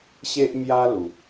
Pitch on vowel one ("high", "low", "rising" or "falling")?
high